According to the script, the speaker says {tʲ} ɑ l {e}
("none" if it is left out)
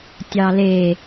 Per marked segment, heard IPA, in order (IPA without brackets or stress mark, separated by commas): tʲ, e